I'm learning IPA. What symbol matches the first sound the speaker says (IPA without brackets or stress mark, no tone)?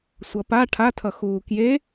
sʷ